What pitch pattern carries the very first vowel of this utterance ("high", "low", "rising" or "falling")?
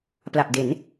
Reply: low